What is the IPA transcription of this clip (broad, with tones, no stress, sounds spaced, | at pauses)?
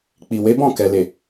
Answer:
k͡p i˨ w e˨˦ b ɔ̃˦˨ k ɛ˨ l e˨